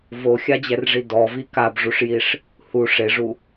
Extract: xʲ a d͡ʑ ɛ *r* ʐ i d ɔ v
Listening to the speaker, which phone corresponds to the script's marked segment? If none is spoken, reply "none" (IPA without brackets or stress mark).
r